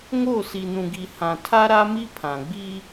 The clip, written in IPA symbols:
ŋ o˦˨ s i˨ n ũ˨ ɡ i˨ h ã˨ tʰ a˦ ɾ a˦ m i˦ pʰ ã˨ ɡ͡b i˦

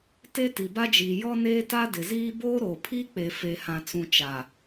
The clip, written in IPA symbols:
t e˦ t i˨ b a˦ d͡ʒ iː˨ j ɔ˦ n eː˦ t a˦ d ɪ˨ z iː˦ b oː˦ ɾ oː˨ pʰ iː˦ k͡p e˨ f e˨ h ã˨ t͡s ũ˨ t͡ʃ a˨

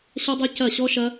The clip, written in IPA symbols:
ɕ ʌ˦ dˤ ɛ˦ c ɐ˦˨ ɕ ɔ˦ ʃ ɐ˦

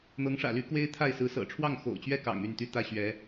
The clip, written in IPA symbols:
n̪ ɤ˧˥ ŋ ʂ ä̰˨˩ l y˧˥ k w e˥ ɪ̯ t̪ʰ a˥˩ ɪ̯ s ɹ̩˧˥ s ɤ̰˨˩ ʈ͡ʂʰ w ɑ˥˩ ŋ x o̰˨˩ ʊ̯ t͡ɕ ɥ ɛ˥˩ k ɑ̰˨˩ ŋ y˥˩ n t̪ y˥ t̪ ä˥ ɕ ɥ ɛ˧˥

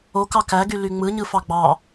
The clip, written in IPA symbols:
o k ɑ k æ ɡ y l y ŋ͡m ɯ ɲ ɯ f ɑ ɡ͡b ɑ

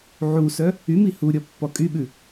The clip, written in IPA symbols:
ʕ u s œ | y m i h u ɾʲ ɔ pː ɔ kʼ y ɓ ʉ

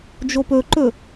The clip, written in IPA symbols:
d͡ʒ o p ɵ ǃ ɵ

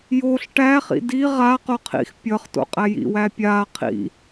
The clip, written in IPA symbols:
j o ɬ ʈ æ χ ḭ d i ʁ a q o qʰ ḭ x pʲ ʌ χ t o̰ qʼ æ j ḭ w æ pʲ a qʰ ḭ

